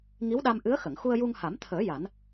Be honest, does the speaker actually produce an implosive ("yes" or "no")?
yes